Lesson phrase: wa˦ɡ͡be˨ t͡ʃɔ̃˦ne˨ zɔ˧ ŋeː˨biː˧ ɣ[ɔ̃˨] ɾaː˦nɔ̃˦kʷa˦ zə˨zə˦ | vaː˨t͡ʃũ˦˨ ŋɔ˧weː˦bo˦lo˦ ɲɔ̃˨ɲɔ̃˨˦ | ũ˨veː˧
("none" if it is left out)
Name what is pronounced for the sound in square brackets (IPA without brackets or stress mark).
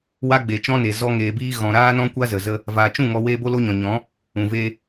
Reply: ɔ̃˨